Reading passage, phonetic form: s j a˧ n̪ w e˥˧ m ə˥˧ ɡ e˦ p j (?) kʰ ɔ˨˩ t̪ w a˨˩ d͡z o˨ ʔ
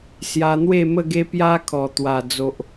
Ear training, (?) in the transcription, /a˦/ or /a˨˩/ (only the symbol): a˦